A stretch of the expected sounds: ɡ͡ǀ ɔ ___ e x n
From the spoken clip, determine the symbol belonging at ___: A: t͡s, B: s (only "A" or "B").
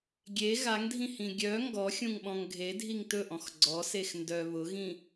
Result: B